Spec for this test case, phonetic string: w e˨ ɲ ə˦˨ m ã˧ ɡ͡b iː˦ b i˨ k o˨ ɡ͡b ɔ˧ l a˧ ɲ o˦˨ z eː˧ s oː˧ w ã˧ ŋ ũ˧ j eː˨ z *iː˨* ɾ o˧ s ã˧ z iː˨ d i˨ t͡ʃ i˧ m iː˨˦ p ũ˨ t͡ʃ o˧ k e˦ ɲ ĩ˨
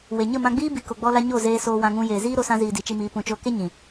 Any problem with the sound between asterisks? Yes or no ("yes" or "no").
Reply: yes